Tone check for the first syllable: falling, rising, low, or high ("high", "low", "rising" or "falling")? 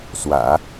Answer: low